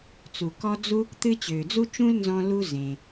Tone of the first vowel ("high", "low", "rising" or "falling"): low